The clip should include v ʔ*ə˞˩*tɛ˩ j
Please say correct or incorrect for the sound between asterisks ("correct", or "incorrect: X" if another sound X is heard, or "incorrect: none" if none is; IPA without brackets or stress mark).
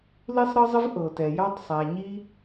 incorrect: ɤ˩